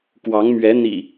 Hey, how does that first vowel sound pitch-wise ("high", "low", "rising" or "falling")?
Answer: rising